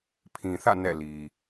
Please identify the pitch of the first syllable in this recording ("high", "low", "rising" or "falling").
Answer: low